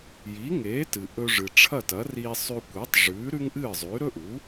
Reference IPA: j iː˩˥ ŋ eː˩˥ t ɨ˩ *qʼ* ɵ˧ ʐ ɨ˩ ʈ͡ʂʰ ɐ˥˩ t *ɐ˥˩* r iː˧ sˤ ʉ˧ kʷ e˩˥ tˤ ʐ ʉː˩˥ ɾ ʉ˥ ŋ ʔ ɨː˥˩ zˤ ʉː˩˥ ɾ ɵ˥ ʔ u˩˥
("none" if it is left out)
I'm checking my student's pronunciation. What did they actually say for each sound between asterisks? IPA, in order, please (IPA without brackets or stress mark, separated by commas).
ʔ, ɐ˩˥